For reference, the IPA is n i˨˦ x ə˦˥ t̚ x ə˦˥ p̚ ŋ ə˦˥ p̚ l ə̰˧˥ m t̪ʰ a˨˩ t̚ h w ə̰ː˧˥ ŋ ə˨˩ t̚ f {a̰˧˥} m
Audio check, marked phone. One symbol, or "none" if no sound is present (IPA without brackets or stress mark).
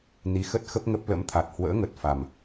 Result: a˨˩